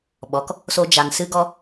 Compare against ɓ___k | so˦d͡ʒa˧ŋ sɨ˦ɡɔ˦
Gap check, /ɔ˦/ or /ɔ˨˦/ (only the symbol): ɔ˨˦